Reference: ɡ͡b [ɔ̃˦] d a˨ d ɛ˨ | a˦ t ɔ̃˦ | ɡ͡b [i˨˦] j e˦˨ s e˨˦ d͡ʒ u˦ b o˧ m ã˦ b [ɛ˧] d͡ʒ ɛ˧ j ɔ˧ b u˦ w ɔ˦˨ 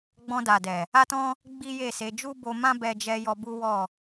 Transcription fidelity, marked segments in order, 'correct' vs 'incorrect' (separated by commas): incorrect, incorrect, correct